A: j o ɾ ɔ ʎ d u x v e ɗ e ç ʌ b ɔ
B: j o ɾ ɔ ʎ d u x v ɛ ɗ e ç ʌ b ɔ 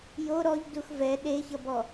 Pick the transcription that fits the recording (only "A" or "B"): B